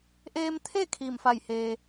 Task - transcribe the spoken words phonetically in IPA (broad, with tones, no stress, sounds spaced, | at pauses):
ʔ eː˧ m t̪ʰ e˥˨ kʰ iː˧˩ m f a˧˩ j h eː˩